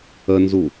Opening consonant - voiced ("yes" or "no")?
yes